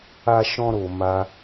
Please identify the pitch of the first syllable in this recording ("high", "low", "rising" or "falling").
high